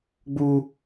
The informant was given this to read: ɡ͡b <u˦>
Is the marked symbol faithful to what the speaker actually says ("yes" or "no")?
yes